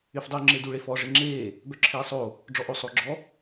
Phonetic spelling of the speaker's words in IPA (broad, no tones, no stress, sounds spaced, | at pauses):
y f dˤ u ŋ͡ǁ e d u ɭ e f ɔ ʐ e ŋ͡ǁ eː | b œ ǁʰ eː sˤ o | ɖ͡ʐ ɔ ʔ o sˤ oː ɡ͡ǁ ɔ